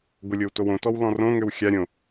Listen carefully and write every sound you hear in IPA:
ɡʷ ə lʲ o w t o w õ t ɔ w l ɔ̃ r õ ŋ ø w xʲ a ɾʲ õ

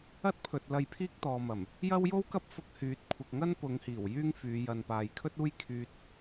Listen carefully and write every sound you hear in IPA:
ɐ˥ t̚ pʰ ɵ˨ t̚ l ɐ˧ j pʰ iː˥ k̚ t̪ ɔː˨ m ɐ˨˩ m | j ɐ˥ w j o˥ w k ɐ˥ p̚ f ʊ˧ k̚ h yː˨˥ t̚ kʷʰ ɪ˨ k̚ ŋ ɐ˥ n p ʊ˨˧ ŋ h iː˨˩ w j yː˥ ŋ f yː˨˧ j ɐ˨ n p aː˨ j kʰ ɵ˥ t̚ uː˥ j kʰ yː˧ t̚

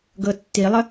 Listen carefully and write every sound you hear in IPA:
ɡ ɤ tː i lˠ ə

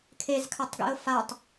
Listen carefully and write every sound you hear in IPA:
kʰ e z kʰ a tˤ ɡ ḭ ʊ̯ f a tˤ

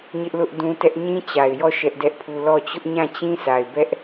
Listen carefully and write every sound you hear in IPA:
ɲ ɪ˦ ʔ l ʊ˦ ʔ d ũ˦ t ɛ˦ ʔ ɲ ĩ˦ t͡ɕ a˨ ɪ̯ j ɔ˦˨ ʃ ɛ˦ ʔ d ɛ˦ ʔ pʰ u˦ l ɔ˦˨ t͡ɕ ʊ˦ ʔ ɲ ã˦˨ t͡ɕ ĩ˦ sʰ a˨ ɪ̯ b ɛ˦ ʔ

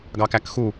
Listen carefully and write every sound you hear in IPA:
ɡ ɑ k æ k x u

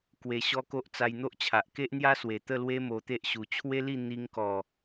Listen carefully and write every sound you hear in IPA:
k w e˧ ɕ ɔ˦ k o˦ ʔ t͡s a˧ j n̪ o˦ ʔ t͡ɕʰ a˨ ʔ k e˦ ʔ n̪ j a˦ s w e˨˩ t̪ ə˥˧ l w e˦ m o˧ t̪ e˦ ʔ ɕ u˨˩ t͡ɕʰ w e˦ l i˥˧ n̪ i˧ ŋ k ɔ˨˩

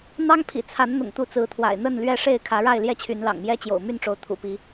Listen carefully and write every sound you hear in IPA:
n̪ ɑ˦ ŋ pʰ ḭ˨˩ t͡sʰ a˨˦ n n̪ ʊ̰˨˩ ŋ t̪ u˨˦ t͡s ɹ̩˨˦ t̪ʰ w a̰˨˩ ɪ̯ n̪ ə˥˨ n l ɥ ɛ˥˨ ʂ e˥˨ ɪ̯ kʰ ä˨˦ ɻ a˥˨ ɪ̯ l j ɛ˥˨ t͡ɕʰ y˨˦ n l ɑ̰˨˩ ŋ m j ɛ˦ t͡ɕ j o̰˨˩ ʊ̯ m y˥˨ n ʈ͡ʂ o˨˦ ʊ̯ t̪ʰ ṵ˨˩ p i˨˦

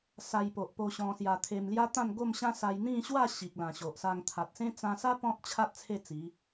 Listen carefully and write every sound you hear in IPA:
s a˧ j p o˨ ʔ p o˧ ɕ ɔ̃˧ s j a˧ t̪ʰ e˧ m l j a˦ t̪ ã˥˧ n ɡ o˥˧ m ɕ ã˦ s a˧ j n̪ ĩ˥˧ ɕ w a˥˧ ɕ i˨ k̚ l ã˨˩ ɕ o˨ ʔ s a˧ ŋ t̪ʰ a˨ t̚ s ẽ˦ t͡s ã˧ s a˦ p ɔ̃˦ t̚ t͡ɕʰ a˦ t̚ t͡sʰ e˥˧ t͡s i˨˦

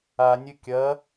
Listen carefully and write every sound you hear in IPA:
a nʲ ɨ kʲ ɐ

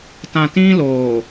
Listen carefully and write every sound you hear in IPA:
t ã˨ t ĩ˦ l oː˨

